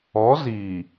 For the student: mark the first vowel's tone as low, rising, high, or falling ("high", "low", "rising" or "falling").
rising